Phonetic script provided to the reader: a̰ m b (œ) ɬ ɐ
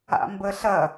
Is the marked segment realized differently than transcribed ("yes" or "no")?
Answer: yes